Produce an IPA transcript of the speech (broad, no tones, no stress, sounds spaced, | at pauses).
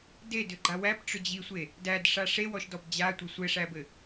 d e d ʏ ɡ͡ǃ a w æ p ʈ͡ʂ ʏ d͡ʑ i sʷ e | d æ d ʂ a ʂ e w ɔ ʃ d ɔ b d͡ʑ a tʷ ɘ sʷ ɘ ʂ æ b ɘ